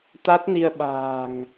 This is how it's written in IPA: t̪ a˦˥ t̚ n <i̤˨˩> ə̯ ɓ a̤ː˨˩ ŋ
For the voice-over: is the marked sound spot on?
no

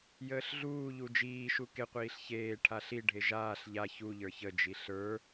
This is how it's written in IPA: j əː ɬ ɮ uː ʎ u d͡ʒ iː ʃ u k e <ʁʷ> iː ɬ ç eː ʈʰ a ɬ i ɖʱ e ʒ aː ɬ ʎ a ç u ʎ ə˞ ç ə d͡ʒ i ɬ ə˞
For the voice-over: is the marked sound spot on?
no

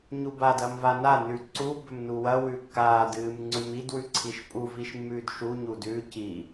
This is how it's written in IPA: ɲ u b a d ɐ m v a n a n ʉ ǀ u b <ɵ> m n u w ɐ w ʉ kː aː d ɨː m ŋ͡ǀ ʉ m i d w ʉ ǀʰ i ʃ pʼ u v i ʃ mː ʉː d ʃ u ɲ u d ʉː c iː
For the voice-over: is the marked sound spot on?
yes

